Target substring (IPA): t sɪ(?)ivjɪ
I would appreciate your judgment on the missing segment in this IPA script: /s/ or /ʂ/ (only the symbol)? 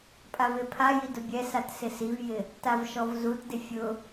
s